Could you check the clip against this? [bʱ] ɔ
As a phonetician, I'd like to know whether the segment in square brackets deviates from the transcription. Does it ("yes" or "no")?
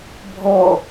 no